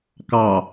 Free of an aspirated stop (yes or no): yes